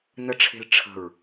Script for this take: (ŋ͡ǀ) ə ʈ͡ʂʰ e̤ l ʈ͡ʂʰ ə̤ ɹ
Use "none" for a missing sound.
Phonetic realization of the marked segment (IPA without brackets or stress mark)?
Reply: n